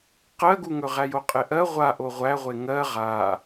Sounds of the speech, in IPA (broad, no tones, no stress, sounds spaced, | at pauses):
q ɜ ɡ u ŋ ɵ ʁ æ j o qʼ e ʔ ɜ ʁʷ a ʔ o ʁʷ æ ʁʷ e ŋ ɜ ʁ a